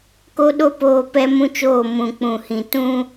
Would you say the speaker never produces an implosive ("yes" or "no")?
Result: no